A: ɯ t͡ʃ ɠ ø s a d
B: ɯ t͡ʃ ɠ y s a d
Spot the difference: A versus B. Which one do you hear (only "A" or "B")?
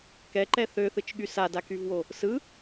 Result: B